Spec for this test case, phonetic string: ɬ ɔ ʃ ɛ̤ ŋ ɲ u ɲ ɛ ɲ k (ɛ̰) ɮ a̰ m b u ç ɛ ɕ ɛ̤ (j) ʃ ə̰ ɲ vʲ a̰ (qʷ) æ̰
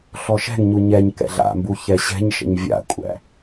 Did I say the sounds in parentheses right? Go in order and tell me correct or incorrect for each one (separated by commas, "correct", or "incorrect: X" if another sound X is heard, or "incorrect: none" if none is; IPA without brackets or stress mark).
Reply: correct, incorrect: ɲ, incorrect: kʷʼ